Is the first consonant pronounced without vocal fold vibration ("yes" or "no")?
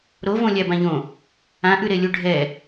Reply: no